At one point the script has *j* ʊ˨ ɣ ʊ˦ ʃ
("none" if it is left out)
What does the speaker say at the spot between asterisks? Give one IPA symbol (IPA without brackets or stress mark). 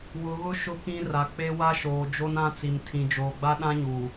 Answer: w